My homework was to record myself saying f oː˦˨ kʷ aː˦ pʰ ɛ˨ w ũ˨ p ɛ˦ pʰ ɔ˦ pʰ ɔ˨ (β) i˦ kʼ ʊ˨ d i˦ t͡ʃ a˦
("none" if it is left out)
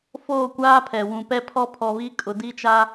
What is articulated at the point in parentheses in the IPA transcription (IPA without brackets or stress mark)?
β